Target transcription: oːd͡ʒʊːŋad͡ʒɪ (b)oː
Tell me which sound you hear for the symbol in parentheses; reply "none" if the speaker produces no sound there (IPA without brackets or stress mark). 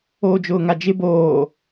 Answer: b